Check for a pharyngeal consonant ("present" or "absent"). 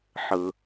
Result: present